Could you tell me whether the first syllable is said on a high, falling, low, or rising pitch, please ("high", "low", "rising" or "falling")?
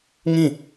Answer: falling